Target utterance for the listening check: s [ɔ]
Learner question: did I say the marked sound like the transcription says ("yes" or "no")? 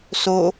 no